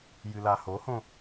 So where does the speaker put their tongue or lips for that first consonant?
palate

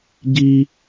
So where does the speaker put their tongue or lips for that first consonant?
palate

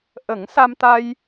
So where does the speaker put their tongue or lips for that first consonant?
throat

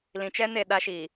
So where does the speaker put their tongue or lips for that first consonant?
tongue tip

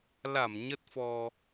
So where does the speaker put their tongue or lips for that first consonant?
tongue tip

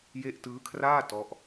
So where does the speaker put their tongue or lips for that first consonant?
palate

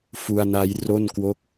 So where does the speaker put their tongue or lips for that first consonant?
lips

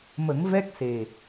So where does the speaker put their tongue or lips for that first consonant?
lips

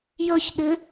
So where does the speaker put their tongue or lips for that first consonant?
palate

